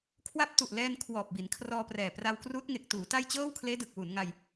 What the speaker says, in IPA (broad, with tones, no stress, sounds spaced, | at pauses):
kʰ w a˦˥ p̚ t u˨˩ ʔ l ɛː˧ n kʰ w ɔː˨˩ p̚ b i˩˦ n kʰ r ɔː˧ p r ɛː˨˩ p r a˧ w k r uː˦˥ t̚ ŋ e˨˩ k̚ t uː˩˦ t a˥˩ j t͡ɕ ɤː˥˩ w kʰ l eː˦˥ d ɯ˨˩ k̚ w u˩˦ n ŋ a˧ j